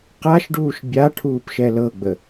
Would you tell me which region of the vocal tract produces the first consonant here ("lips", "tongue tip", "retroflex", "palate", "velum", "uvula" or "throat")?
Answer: uvula